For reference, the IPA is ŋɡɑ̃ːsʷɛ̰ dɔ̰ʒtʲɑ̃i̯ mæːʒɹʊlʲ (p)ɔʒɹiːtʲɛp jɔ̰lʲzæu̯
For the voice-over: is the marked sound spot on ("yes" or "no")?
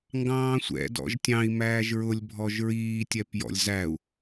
no